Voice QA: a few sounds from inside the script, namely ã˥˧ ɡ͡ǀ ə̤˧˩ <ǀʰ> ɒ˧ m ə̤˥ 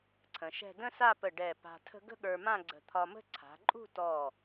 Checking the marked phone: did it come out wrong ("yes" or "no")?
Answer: yes